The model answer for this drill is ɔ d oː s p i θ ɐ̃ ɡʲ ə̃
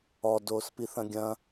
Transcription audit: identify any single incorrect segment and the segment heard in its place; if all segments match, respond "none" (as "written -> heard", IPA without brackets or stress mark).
ə̃ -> ɐ̃